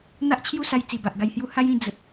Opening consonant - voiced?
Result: yes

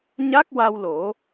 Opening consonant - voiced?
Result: yes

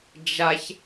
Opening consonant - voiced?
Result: yes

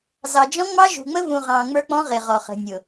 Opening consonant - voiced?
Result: yes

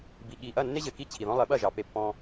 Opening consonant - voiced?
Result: yes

